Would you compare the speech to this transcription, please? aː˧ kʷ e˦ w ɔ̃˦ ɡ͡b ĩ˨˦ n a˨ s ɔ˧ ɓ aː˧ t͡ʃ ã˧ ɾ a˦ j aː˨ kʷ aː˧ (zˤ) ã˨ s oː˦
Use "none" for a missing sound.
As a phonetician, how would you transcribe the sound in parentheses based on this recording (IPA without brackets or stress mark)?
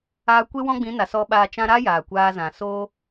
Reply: z